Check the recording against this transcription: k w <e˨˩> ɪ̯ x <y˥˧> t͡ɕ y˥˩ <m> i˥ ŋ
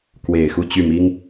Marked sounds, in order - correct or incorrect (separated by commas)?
correct, incorrect, correct